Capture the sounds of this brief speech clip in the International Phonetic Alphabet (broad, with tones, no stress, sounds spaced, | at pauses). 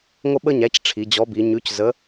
ŋʷ ə˥ ɓ ə˥ ɲ æ˨˥ c ʈ͡ʂʰ i˩˧ d͡ʑ ɔ˨˥ b i˩˧ ɲ ʉ˨˥ c z ə˨˥